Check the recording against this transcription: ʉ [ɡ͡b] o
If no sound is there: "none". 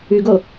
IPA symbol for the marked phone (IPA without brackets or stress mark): ɡ